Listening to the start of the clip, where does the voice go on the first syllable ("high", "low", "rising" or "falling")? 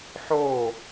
falling